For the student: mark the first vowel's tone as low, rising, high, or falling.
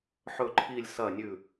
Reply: low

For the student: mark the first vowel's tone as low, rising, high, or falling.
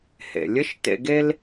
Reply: low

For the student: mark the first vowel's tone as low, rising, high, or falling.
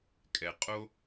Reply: low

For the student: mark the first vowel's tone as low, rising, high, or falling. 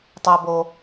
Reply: low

